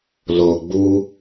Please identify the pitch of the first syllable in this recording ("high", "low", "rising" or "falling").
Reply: low